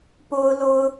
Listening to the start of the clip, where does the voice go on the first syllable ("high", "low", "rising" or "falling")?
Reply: high